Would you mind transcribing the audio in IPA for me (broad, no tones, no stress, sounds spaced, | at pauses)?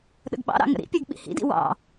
ɗ ə̰ ɡ ɓ ɑ̰ ɾ ɑ̰ ŋ ə̰ ɾ ḭ pʲ ɜ ɡ ɓ ḭ h ḭ d ḭ w ɑ̰